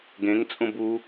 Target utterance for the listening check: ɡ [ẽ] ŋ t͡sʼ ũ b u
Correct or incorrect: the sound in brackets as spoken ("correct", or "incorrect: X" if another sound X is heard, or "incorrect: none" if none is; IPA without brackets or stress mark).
correct